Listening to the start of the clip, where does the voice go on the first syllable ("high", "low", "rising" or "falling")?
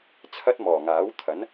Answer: high